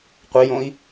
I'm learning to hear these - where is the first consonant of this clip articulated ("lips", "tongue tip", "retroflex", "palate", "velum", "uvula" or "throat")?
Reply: uvula